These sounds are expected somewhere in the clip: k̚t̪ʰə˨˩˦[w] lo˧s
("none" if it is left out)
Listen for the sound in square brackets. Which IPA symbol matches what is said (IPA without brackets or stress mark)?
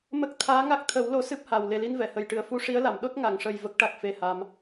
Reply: w